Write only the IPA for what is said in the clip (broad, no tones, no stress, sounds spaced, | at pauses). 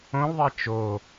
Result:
õ l ðˤ e t͡ʃ o